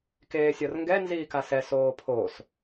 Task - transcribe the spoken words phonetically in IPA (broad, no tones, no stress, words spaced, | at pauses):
keːsʲɒrŋɡɛ nziːkasɛ soːpʰos